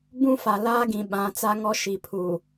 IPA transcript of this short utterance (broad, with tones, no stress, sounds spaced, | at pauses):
b ũ˦ f a˨ l aː˦ ɡ ĩ˨ ɓ ã˨˦ t͡s a˦ ŋ ɔ˦ ʃ i˨ pʰ uː˨